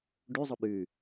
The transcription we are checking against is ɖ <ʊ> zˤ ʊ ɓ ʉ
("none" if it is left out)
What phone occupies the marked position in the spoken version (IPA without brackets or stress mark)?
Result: ʉ